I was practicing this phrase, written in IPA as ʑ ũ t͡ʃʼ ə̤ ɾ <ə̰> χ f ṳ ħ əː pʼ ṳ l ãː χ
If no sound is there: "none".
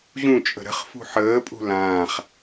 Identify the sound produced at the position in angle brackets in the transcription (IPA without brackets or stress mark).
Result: ə̤